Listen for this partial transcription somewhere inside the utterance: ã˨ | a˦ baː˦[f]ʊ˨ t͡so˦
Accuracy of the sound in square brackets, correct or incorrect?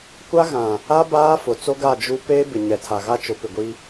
correct